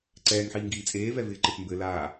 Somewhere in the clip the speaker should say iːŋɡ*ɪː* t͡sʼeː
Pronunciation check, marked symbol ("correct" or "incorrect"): incorrect